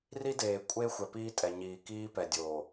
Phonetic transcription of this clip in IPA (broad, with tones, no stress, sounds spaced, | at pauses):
r i˦ d eː˨ kʷʼ e˦ xʷ ɛ˨ p iː˦ tʼ ɛ˨ ɲ iː˨ k iː˦ p ɛ˨ dʲ oː˨